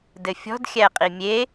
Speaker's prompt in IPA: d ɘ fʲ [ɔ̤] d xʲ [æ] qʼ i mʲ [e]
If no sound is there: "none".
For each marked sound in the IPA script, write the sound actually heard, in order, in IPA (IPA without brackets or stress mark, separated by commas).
ɔ̤, æ, e